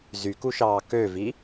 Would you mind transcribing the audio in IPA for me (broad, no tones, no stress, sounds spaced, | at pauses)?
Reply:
z y k u ʃ ɑː k ø v i